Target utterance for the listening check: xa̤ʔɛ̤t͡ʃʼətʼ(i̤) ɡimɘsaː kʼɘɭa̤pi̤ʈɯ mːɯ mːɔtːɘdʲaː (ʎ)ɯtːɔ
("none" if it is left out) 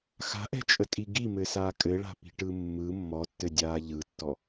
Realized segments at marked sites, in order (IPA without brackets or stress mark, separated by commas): i, ʎ